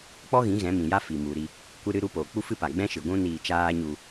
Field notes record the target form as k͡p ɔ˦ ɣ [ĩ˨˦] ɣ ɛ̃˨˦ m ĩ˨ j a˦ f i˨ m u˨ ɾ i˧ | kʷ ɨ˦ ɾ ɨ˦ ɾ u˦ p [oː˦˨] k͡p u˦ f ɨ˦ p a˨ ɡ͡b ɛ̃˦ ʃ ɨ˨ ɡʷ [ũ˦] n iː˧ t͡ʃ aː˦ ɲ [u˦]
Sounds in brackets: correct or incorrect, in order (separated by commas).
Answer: correct, incorrect, correct, incorrect